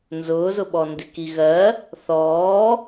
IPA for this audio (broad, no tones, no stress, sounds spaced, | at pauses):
n z ʊː z ʊ ɓ ɔ n d ɪ k i ɣ ɜ | θ ɔː